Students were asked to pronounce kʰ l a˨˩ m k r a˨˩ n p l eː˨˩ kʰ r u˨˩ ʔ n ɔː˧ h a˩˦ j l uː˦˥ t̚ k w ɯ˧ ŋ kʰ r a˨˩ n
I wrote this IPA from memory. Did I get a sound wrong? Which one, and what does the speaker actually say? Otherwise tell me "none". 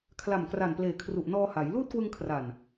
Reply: none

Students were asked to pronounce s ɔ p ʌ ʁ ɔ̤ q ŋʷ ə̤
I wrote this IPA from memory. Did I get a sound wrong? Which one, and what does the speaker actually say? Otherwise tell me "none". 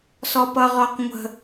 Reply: ɔ̤ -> ɔ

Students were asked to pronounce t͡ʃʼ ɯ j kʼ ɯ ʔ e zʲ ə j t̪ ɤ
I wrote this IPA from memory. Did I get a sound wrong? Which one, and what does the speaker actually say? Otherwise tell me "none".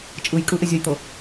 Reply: none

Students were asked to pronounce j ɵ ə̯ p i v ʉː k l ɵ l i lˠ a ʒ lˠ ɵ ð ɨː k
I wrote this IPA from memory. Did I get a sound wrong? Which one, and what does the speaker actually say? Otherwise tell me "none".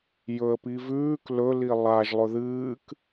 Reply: none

